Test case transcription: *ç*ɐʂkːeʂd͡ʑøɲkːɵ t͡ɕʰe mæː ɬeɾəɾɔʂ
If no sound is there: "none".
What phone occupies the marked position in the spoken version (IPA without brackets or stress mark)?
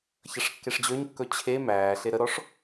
ç